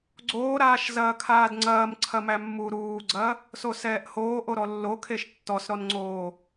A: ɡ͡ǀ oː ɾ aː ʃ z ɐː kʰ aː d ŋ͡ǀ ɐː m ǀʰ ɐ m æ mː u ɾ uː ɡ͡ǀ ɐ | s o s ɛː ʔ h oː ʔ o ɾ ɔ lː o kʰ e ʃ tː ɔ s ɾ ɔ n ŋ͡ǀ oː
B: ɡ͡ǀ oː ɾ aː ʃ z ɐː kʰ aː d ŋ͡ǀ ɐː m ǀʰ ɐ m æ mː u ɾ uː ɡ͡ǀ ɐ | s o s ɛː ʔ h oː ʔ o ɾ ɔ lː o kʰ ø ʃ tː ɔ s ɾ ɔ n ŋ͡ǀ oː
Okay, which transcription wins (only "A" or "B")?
A